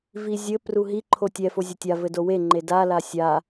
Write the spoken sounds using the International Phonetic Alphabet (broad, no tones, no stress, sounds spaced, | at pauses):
v i zʲ ɘ p r u ɦ i ǃʰ o tʲ ɛ f o zʲ ɐ tʲ a v ɘ d o w e ŋ͡ǃ e d a l a sʲ a